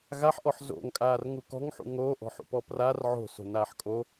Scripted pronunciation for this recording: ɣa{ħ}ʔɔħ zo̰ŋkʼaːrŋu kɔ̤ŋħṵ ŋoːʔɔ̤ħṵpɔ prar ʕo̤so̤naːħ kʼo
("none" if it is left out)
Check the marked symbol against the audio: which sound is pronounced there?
ħ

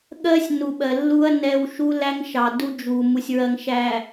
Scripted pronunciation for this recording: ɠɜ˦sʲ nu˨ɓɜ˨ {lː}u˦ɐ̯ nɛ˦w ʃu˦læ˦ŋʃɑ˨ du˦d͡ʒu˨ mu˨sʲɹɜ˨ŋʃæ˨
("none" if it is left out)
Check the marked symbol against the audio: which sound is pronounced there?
lː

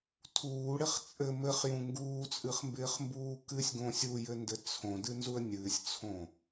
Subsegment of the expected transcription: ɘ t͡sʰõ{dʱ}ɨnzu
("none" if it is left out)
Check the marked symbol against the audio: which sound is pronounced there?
d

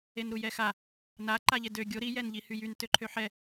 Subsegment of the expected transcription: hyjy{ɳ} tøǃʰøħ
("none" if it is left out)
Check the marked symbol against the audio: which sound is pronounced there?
n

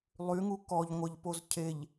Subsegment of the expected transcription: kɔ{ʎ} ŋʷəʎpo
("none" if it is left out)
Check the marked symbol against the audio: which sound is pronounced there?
ʎ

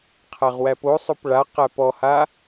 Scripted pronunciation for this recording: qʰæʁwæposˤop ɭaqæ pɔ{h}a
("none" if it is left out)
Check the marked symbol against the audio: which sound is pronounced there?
h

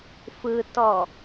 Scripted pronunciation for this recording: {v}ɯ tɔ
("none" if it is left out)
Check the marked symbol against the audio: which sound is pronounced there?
f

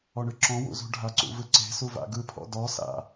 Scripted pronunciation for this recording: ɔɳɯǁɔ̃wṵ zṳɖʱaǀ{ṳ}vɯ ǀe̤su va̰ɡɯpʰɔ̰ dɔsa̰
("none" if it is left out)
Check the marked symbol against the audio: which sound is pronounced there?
ṵ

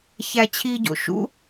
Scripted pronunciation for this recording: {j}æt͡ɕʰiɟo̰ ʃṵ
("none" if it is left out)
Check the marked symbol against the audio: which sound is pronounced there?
ç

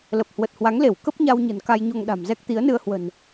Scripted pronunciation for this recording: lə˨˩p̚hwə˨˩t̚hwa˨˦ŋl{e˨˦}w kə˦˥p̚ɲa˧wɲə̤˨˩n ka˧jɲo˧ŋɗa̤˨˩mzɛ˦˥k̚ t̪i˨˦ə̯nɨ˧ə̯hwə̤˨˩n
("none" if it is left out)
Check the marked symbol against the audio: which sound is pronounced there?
e˧˩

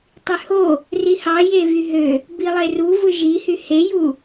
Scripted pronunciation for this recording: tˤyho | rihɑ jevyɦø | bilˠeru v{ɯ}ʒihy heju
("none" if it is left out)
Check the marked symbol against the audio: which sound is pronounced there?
ɯ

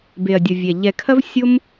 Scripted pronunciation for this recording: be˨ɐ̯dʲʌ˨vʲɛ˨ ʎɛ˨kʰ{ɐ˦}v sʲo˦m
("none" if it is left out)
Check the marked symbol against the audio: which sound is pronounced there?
ɐ˦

